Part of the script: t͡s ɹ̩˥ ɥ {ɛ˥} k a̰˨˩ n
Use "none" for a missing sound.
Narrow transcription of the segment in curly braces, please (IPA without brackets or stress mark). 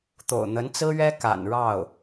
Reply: ɛ˥